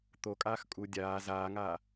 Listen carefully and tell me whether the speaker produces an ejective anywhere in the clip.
yes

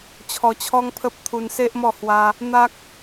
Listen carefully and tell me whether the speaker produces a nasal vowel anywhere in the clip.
no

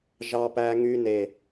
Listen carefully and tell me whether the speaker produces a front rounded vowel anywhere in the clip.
yes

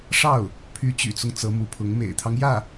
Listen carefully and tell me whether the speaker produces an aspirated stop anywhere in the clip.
yes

